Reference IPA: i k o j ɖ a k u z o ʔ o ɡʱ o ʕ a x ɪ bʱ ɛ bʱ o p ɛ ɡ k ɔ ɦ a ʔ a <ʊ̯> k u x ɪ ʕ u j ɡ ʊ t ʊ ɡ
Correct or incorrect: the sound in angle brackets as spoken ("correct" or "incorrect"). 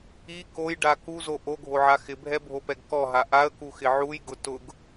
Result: incorrect